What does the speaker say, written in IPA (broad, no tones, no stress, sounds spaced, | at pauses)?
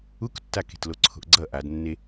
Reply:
u k tː a k e̤ t l o ǀʰ o̤ ʔ ɡ͡ǀ ʌ ʔ a d nː e